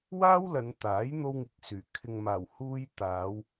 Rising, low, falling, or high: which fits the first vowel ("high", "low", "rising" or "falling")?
high